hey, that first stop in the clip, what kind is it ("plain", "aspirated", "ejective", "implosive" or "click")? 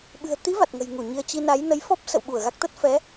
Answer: implosive